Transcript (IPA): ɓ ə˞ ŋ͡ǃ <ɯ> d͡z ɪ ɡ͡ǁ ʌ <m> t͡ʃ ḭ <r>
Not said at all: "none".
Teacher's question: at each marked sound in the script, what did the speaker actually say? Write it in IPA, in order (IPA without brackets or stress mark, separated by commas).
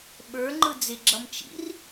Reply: ɯ, m, r